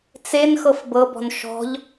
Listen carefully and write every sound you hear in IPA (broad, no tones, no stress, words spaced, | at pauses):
t͡sen xɤfbɤbɔ̤n ʃɔ̤ʎ